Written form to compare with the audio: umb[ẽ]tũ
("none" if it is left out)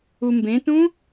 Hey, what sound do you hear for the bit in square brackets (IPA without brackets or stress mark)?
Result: ẽ